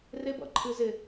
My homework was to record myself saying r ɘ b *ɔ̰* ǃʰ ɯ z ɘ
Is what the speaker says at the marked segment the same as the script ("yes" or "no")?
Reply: yes